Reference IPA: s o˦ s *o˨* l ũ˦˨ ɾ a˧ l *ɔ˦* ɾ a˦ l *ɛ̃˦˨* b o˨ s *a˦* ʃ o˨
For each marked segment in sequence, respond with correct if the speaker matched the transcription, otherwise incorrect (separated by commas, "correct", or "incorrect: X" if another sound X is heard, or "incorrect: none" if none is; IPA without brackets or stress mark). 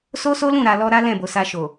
incorrect: o˦, correct, correct, incorrect: a˧